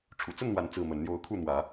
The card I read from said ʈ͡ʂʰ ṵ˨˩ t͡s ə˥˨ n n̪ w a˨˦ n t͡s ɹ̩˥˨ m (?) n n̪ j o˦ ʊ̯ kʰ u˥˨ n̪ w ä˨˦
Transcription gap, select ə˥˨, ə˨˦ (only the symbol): ə˨˦